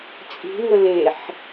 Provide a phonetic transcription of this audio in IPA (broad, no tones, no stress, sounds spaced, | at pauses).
t͡sʼ i̤ ŋ ə l e ħ